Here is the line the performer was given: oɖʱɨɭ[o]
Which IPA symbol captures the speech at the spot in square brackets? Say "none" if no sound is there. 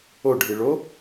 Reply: o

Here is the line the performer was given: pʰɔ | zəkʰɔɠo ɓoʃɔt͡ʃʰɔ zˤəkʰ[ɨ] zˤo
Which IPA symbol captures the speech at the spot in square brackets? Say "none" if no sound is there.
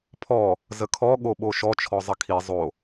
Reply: i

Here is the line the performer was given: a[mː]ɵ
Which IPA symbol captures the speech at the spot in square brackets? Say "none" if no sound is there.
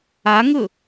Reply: ŋ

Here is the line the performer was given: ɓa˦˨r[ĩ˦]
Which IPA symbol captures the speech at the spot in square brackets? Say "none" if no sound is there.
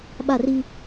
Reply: i˦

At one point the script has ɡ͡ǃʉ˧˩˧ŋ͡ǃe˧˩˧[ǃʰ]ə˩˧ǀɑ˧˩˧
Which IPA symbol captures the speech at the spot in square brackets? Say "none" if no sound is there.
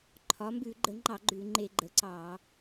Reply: ɡ͡ǃ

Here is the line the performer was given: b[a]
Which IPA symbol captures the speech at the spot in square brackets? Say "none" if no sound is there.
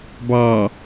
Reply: ɑ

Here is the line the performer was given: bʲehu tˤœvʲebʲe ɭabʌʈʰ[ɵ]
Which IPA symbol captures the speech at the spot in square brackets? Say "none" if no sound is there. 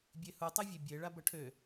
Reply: ø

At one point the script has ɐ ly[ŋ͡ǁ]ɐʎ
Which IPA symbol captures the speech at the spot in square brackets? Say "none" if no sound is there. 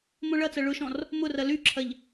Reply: ǁʰ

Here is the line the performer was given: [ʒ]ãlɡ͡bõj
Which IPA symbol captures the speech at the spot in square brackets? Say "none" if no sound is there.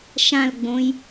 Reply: ʃ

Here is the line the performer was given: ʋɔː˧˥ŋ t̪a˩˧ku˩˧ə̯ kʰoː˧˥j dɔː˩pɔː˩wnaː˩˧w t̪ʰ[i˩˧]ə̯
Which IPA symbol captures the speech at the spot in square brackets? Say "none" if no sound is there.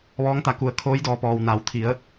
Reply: i˩˧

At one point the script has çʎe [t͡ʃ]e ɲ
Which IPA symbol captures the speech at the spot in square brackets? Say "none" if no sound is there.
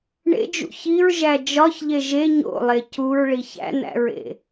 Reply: ʒ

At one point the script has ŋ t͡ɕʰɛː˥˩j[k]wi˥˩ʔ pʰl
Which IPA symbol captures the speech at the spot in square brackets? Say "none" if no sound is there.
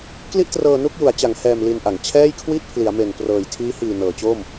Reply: kʰ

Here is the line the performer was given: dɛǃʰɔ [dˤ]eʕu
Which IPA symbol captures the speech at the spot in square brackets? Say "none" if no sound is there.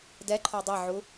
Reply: dˤ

